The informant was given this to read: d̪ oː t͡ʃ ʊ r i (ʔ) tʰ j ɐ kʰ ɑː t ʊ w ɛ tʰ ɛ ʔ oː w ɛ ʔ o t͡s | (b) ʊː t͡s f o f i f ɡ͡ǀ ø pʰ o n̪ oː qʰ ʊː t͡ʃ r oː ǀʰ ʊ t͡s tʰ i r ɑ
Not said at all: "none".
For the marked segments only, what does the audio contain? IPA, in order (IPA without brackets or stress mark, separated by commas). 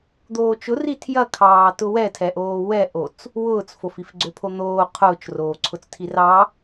none, w